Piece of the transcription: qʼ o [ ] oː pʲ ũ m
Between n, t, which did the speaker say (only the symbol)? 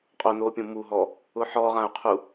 n